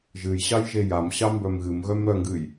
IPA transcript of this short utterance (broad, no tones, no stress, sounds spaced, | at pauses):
ʒ ɨ j ɕ ɑ j ʒ e j a m ɕ ɑ m b œ m ɣ ɨ m ɣ œ m ɾ œ ŋ ɡ ɨ j